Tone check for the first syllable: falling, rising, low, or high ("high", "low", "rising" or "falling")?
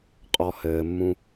low